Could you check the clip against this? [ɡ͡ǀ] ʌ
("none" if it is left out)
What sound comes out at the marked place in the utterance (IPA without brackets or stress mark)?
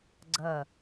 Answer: ɡ͡ǀ